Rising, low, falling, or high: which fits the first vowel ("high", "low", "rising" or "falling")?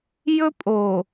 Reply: high